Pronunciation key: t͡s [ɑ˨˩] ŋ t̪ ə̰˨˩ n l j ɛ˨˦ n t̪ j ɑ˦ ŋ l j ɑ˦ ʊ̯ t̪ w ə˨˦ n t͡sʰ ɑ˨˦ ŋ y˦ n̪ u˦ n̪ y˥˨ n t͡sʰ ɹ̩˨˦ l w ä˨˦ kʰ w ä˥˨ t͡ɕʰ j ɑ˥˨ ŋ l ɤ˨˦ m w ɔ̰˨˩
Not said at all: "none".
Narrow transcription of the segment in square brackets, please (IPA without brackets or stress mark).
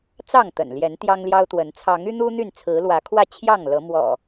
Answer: ɑ˥˨